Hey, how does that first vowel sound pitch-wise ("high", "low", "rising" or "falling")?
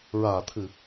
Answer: low